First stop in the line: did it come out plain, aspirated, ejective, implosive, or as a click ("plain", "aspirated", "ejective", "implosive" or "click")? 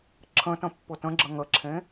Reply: click